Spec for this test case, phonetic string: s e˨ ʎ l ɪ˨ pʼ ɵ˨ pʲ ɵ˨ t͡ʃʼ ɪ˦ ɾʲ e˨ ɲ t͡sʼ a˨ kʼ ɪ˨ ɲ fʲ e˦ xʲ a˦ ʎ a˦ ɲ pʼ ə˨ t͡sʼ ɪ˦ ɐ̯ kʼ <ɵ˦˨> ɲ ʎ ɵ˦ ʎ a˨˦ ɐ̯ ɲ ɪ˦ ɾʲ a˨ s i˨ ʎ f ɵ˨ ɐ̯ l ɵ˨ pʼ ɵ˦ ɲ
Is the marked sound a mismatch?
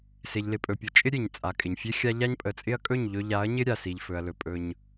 no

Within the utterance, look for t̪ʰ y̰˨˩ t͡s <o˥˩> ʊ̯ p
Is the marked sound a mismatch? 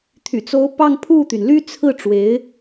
yes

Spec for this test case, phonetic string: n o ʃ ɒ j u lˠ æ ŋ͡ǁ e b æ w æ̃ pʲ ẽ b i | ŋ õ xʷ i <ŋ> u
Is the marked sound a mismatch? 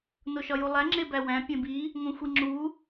yes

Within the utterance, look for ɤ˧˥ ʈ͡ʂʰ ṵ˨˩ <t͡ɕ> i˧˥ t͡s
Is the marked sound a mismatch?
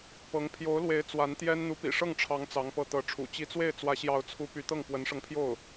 no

